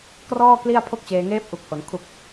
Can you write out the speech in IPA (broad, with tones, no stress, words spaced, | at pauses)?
krɔː˥˩ kli˥˩a̯pʰo˥˩k̚t͡ɕeː˧ ŋeː˦˥p̚ʔu˨˩k̚ho˩˦n kʰu˨˩k̚